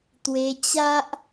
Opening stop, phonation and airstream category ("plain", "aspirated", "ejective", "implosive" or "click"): plain